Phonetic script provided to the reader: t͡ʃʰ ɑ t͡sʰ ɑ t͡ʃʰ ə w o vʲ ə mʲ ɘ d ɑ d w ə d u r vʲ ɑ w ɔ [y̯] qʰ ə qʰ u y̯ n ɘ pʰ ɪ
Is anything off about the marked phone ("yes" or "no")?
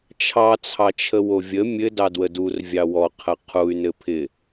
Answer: yes